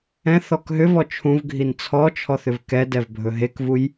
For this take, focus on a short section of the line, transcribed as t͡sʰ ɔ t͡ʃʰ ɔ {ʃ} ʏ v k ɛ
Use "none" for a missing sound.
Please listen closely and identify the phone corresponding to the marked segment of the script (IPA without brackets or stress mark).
θ